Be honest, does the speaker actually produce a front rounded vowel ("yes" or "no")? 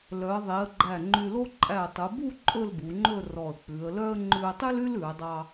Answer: yes